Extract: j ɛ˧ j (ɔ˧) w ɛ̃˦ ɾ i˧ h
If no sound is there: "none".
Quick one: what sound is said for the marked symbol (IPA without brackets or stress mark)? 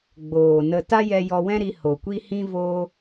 ɔ˧